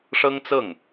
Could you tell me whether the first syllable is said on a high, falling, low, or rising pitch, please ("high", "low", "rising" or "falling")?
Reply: high